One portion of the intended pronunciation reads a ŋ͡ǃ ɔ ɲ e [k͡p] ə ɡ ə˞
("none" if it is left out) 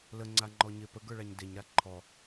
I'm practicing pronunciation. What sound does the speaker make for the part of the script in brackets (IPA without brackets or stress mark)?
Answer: p